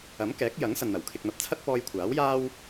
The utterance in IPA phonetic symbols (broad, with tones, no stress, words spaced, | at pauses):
ɐ˨˥mkɛː˨˥k̚jɐ˨˥ŋ sɐ˨nn̪ɐ˨˩w kʰɪ˨k̚n̪ɐ˨p̚t͡sʰɐ˥t̚ pɔː˧jkʷʰaː˨˥wjaː˥w